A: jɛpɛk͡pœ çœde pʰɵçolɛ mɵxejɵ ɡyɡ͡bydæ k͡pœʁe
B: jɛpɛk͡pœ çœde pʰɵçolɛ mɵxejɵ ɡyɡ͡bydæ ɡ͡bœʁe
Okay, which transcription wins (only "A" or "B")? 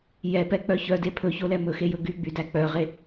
A